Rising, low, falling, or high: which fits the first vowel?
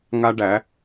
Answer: high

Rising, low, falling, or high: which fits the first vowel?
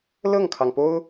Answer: falling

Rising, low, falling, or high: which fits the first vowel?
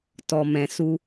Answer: low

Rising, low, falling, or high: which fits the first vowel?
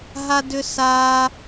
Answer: high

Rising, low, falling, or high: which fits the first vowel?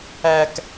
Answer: high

